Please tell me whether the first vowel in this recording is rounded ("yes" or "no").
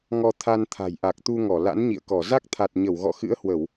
yes